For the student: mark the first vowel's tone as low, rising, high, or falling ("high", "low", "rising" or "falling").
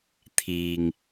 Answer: low